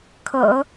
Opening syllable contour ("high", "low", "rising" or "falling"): low